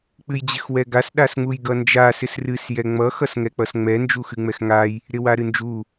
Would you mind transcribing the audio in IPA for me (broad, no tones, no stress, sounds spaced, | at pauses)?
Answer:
k͡p ɨ j d͡ʑ ɪ x w ɛ ɡ a s ɗ a s ŋ͡m u j ɡ ʌ n d͡ʒ a s ɪ s r ɨ s j ɛ ŋ͡m ʌ x ʌ s ŋ ɛ k͡p ʌ s ŋ͡m ɛ n d͡ʒ u x ɨ ŋ͡m ɛ x ŋ a j | ɾ ɪ w a ɾ ɨ n d͡ʒ u